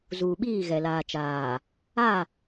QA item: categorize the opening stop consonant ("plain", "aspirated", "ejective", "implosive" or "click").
implosive